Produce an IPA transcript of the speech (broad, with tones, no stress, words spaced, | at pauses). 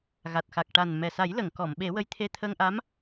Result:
ɣa˨˩t̚ xa˨˩k̚ʈa˨˩n mɛ˨˩ sa˨˩˦jlə˨˩˨ŋ kɔ˨˩˨mɓe˨˩˦wə˧˥j t̪ʰe˧t̪ʰə˧ŋʔa˧˥m